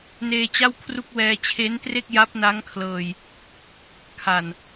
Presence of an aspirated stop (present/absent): present